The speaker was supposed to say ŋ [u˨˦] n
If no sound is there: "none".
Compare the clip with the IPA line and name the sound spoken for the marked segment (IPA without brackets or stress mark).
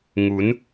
u˨˦